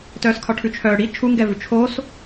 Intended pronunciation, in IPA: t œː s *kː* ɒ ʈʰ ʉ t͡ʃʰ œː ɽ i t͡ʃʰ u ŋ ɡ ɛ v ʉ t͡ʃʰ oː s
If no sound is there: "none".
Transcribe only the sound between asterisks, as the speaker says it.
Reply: kʰ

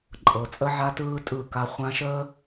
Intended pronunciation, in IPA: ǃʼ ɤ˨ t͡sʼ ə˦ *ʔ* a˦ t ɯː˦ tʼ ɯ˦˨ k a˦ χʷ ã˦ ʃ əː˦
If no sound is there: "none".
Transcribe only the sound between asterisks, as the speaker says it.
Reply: ʕ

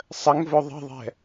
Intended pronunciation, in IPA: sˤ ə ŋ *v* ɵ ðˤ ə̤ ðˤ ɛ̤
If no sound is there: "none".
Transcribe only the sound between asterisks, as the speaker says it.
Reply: v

